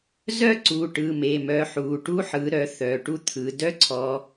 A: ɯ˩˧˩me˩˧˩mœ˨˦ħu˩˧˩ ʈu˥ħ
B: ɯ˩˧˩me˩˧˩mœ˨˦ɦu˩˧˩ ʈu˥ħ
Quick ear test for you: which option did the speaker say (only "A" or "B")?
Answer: A